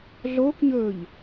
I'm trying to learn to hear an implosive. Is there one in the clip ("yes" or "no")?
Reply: no